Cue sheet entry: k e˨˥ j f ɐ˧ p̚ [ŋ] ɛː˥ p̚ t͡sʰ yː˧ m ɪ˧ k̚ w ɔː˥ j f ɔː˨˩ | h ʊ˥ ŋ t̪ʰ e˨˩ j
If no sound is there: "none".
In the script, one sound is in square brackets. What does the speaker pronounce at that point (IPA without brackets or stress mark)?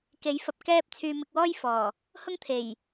k